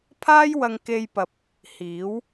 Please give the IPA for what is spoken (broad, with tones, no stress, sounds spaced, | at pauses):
pʰ aː˥ j w ɐ˧ ŋ k e˧ j p ɐ˨ p̚ | h iː˨˥ w